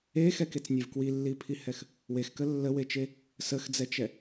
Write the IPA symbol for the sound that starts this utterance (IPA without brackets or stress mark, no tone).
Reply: e